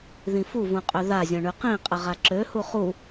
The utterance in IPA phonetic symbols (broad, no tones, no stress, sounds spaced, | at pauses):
ð ĩ f u v ũ qʼ ø ð a zʲ ɔ̃ ɳ y q ĩ qʼ ə ʁ a ǁ ø h u χ u